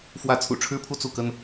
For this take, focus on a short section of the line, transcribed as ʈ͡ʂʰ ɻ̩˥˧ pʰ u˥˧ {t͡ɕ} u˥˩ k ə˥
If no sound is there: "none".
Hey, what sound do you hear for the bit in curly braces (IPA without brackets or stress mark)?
t͡s